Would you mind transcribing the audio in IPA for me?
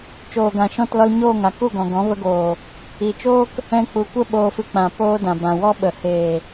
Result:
t͡ʃoː˨ɡã˨ ʃɔ̃˦˨tlɔ˧lɲoː˦˨ ŋa˨ku˦˨ɡɔ̃˨ ɡɔ̃˨˦və˧ɡoː˨ | i˨t͡ʃoː˦k | ɛ̃˧k͡pu˨kʷə˦ ɓoː˧fɨ˧k͡pã˨ poː˦ dã˨bã˨ wɔ˦ɓə˨ heː˨

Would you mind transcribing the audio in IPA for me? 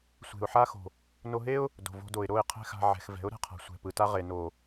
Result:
sʷe̤˨ʊ̯ħa˦xo̤˨ | no˧ɦe˦ʊ̯ | do̤˨vo̤˧do˨ɪ̯ ɾo˦˨ɪ̯qʰɛ̤˦xa̤˧ ʕɛ̤˨x vɛ̤˨˦ʊ̯ɾɛ̤˧qʰa̤˨ sʷɛ̤˨pɯ˨ ta˧ʁe˨ no˨

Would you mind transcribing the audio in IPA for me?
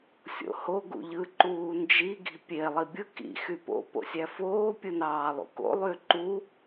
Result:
sʲo̰ho ɡṵʎɯ ǃuːnd͡ʒi ɡi̤pʲe lˠibʲɯ kḭ xypo̰ po̰sʲæfoː pʲɯnɑːlˠṵko̰ lˠyǃu

